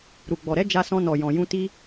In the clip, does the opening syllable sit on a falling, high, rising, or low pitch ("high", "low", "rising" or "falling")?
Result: low